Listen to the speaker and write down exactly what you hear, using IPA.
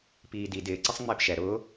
p iː d i d ɪː ǀ i sˤ ŋ͡m ɪː p ʃ ɛ ɾ ʊː

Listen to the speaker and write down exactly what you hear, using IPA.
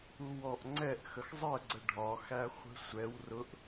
u w ɔ ʔ ŋ͡ǀ ɛ ʔ x ə x zˤ ɜ ɡ͡ǀ ə ɖʱ ɒ x æ χʷ ə̤ sʷ ɛ w r ʊ ʔ

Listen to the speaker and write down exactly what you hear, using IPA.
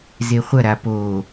z e χʷ ɐ ɾ a p o

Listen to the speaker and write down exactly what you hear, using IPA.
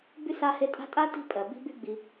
b y˥ s a˦ h e˦ tʼ a̤˥ tʼ a˥ t i̤˦ pʼ ɜ˩ b i̤˦ b y˦ ɡ͡b i˨

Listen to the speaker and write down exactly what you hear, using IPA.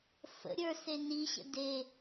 f ə̰ ɾʲ ə˞ s e n i ɕ ə̰ d e

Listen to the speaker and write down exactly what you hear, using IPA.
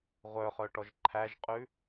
ʁʷ œ χ œ ʈ ɔ ʒ ǃʰ æ ʒ qʼ ʉ

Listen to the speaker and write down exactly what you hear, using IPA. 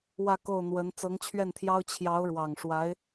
w ä˥˧ k o˥˩ ʊ̯ n̪ w ə˧˥ n t͡s ɤ˧˥ ŋ t͡ɕʰ ɥ ɛ˥˩ n t̪ʰ j ɑ˥ ʊ̯ t͡ɕʰ j ɑ˧˥ ʊ̯ ɻ w ɑ˨˩ ŋ ʂ w a˧˥ ɪ̯

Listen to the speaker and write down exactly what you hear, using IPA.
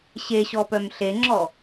ɕ e ɕ ɔ p œ m ɬ e ŋ͡ǁ ɔ

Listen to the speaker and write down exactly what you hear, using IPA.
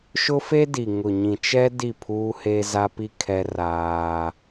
ʃ ʊ˦ f e˦ d i˨ ŋ ʊ˨ ɲ ĩ˨ t͡ʃ ɛ˦ d i˦˨ pʰ uː˦ h e˦ z a˦ p i˦ kʰ ɛ˦ r aː˦

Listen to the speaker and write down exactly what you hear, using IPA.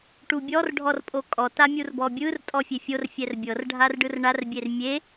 ʈ u bʲ ɔ r ɖʱ ɔ r pʼ o kʼ ɔ t a mʲ u r b ɔ bʲ ɯ r tʼ ɔ fʲ e fʲ o r fʲ ɛ r bʲ ɤ r ɖʱ a r ɖ ɯ r ɳ a r bʲ e r mʲ e

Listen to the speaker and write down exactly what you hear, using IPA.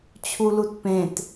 t͡ɕʰ u l u t p ẽ t

